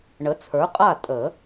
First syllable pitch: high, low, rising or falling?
rising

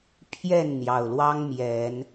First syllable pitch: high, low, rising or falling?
falling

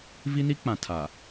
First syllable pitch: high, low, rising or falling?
high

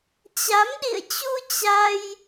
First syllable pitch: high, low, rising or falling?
rising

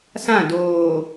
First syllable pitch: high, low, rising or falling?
falling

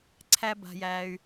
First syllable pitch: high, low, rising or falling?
high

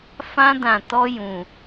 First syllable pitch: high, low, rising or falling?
high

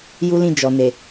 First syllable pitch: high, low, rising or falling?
high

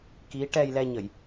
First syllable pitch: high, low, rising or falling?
rising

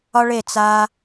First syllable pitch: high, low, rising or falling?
high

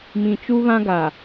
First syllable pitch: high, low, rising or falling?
low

